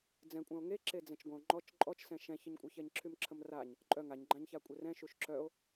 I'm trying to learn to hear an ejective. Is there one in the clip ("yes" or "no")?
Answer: yes